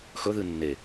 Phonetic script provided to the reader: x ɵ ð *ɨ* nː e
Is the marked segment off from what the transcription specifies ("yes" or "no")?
no